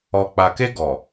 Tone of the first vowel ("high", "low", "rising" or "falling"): low